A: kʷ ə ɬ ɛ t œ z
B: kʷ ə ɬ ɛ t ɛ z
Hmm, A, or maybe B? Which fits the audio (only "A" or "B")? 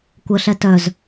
A